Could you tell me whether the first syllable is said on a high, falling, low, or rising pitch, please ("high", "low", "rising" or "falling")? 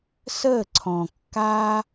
falling